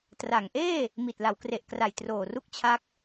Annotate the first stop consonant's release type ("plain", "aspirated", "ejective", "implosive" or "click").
plain